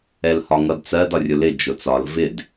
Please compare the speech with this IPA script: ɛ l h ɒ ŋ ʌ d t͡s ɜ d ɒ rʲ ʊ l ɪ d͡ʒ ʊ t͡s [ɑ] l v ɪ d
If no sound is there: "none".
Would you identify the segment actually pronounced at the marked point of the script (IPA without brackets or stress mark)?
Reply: ɒ